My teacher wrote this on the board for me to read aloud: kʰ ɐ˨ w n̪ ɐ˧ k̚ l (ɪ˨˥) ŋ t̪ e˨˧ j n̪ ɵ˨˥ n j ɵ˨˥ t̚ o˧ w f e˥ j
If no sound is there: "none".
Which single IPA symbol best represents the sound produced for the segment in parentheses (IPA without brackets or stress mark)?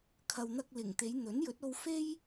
ɪ˨˩